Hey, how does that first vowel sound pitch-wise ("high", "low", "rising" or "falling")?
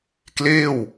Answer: falling